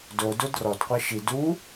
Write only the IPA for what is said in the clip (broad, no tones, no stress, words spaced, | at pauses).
dodo drɔdqʷɛ ʃi du